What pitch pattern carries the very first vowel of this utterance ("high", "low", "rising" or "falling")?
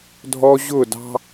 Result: high